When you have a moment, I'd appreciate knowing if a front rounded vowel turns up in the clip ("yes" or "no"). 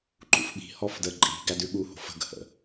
no